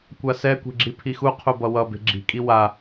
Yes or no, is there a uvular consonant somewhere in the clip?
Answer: yes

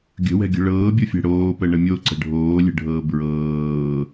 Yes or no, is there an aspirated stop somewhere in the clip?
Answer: no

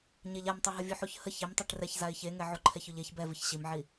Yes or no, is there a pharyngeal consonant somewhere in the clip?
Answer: yes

